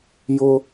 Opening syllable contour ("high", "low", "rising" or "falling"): high